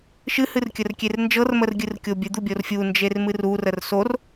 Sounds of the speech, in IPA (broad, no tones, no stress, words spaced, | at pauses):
ʃɨ hɨrkʲərkʲernd͡ʒɤr mərɡʲɨrkʲobʲɨ d̪ubʲorfʲu nd͡ʒermɨrur ərsor